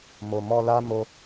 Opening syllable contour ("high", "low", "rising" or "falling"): low